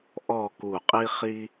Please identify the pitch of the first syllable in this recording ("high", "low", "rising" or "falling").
falling